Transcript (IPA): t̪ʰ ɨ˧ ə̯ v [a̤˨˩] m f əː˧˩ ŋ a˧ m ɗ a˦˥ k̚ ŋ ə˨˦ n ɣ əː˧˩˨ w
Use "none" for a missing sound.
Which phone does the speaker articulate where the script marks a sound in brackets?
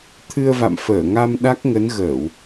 a̰˧˨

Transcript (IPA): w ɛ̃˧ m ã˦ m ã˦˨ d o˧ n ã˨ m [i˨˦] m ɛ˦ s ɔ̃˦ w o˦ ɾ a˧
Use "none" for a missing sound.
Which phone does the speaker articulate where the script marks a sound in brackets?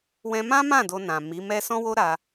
i˨˦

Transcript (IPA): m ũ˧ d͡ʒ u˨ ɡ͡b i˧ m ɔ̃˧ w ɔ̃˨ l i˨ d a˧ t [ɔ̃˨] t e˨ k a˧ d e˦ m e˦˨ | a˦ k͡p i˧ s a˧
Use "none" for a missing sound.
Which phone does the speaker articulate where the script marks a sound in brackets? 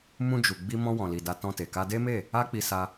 ɔ̃˧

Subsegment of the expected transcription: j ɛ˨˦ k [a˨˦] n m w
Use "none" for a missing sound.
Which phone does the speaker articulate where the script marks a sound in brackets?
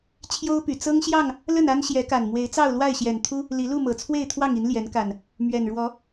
a˨˩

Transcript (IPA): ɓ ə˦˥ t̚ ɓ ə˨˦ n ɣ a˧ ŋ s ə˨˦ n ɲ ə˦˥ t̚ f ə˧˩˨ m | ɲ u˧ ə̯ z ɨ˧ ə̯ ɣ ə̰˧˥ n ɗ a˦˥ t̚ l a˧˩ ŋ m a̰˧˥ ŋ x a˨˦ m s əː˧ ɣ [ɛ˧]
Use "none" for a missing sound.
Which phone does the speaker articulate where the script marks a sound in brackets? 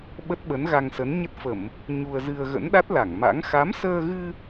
ɨ˧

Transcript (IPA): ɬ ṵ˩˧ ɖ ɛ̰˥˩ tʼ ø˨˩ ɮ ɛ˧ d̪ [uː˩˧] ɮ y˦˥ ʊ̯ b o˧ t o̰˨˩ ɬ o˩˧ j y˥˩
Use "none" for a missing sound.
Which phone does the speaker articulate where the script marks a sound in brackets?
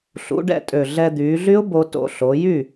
yː˩˧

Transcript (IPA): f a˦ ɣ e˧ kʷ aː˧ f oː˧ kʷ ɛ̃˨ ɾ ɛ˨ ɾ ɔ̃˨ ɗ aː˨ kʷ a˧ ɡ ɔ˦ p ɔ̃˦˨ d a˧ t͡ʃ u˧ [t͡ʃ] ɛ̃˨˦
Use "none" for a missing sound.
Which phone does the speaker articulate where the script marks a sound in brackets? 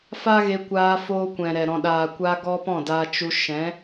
ʃ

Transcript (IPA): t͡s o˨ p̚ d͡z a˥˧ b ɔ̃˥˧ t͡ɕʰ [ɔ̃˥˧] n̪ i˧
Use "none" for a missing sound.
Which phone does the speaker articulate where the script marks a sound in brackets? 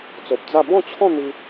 ɔ̃˥˧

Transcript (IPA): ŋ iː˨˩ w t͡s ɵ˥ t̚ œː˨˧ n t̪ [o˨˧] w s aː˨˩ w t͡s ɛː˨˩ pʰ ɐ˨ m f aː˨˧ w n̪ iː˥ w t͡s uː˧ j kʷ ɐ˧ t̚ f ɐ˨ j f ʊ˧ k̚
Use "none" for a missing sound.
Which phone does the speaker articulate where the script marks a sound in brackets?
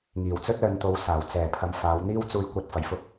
o˨˧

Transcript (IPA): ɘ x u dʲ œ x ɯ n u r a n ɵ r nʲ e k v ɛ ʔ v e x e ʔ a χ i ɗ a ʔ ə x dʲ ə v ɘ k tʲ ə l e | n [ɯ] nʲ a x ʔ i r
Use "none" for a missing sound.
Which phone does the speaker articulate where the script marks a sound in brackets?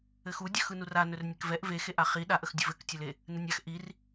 ɯ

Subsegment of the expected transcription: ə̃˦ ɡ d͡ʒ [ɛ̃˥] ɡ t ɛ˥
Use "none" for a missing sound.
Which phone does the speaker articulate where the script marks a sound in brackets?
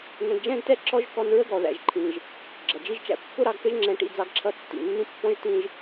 ɛ̃˥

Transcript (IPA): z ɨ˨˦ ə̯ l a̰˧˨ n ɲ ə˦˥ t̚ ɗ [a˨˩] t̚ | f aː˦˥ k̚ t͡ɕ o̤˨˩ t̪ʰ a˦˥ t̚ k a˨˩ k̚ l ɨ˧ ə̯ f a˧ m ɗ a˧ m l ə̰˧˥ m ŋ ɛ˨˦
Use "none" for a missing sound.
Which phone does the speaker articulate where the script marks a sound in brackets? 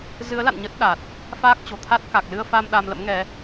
a˨˩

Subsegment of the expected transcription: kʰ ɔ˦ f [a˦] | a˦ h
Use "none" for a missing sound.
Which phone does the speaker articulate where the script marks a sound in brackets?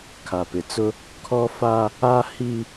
a˦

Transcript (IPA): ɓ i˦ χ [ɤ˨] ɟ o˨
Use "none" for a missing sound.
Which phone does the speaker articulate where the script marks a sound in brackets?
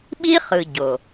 ɯ˨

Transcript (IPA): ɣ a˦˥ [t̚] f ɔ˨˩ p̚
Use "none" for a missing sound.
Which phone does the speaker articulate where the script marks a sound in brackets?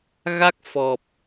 k̚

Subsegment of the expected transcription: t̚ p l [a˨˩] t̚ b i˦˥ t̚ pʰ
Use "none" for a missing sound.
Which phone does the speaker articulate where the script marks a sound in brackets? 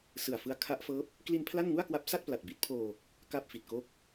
a˨˩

